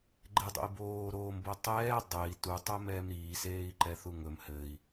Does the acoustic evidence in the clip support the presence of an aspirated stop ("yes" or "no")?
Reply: no